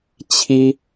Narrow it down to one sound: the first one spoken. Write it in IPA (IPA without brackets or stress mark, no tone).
t͡ɕʰ